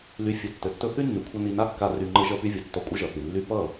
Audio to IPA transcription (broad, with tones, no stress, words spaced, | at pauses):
ly˧ fʲɘ˧ tːɘ˨tːɵ˧ θy˦nːy˨kʷʰʌ˧ ni˧na˦kːa˧ ry˧ ŋ͡ǃɘ˧ʒʌ˧py˧vʲʌ˨ tːɔ˧kʷʼɘ˦ʒʌ˨θi˨ lːy˧pʌ˦˨